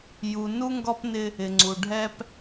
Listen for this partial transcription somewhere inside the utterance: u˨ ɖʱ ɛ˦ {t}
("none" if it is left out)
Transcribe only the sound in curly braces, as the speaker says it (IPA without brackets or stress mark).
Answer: p